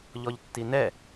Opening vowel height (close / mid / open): mid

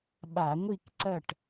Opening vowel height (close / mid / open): open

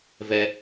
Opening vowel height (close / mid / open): mid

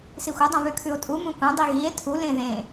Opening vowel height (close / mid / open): close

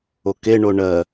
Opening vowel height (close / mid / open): mid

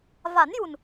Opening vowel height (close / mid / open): open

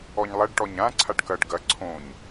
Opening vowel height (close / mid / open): mid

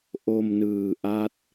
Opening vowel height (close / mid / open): mid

